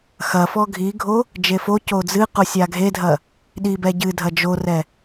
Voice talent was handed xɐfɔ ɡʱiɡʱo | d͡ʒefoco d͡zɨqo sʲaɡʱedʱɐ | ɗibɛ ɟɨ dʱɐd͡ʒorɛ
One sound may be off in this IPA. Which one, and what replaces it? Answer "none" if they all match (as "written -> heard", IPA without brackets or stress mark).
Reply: none